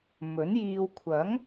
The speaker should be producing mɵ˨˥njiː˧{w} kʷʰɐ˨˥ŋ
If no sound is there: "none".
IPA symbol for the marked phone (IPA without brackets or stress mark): w